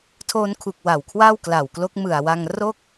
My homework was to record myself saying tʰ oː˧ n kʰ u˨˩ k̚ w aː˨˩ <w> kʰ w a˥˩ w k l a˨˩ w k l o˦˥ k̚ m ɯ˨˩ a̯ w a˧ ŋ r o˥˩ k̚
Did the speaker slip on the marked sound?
no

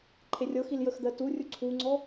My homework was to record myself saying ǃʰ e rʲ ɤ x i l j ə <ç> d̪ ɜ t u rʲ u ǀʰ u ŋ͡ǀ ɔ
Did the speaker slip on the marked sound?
yes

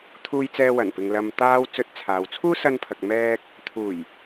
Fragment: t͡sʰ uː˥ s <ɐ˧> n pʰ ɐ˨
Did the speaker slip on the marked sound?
no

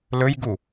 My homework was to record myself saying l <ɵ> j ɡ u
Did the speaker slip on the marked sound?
no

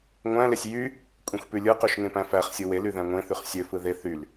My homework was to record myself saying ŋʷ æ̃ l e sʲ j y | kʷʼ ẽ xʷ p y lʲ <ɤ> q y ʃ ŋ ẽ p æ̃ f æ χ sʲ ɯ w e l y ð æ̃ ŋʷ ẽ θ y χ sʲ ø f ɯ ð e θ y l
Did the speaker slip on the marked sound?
yes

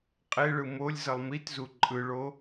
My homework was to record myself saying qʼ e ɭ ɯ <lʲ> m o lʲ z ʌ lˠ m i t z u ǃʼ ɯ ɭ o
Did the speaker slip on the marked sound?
yes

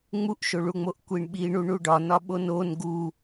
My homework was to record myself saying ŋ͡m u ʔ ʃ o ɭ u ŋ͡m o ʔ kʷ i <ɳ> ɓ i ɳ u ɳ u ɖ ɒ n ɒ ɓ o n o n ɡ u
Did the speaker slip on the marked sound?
no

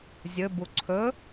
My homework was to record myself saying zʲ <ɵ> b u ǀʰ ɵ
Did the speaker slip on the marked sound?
no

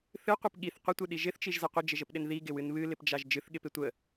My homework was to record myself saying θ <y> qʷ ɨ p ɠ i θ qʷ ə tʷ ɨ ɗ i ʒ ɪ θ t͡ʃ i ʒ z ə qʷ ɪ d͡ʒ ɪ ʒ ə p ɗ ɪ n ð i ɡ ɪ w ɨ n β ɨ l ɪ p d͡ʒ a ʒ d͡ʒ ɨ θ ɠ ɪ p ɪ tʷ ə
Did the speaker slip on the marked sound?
yes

